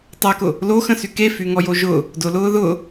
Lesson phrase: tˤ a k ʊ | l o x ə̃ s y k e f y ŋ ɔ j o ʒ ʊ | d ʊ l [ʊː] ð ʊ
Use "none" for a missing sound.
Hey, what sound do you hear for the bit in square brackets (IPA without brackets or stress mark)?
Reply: ʊː